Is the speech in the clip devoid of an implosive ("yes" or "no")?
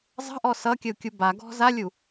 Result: yes